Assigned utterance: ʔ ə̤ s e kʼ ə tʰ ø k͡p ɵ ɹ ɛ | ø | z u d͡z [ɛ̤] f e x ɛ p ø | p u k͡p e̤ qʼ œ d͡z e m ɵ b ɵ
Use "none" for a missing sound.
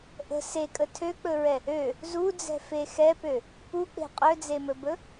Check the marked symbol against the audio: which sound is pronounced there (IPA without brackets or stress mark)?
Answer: ɛ̤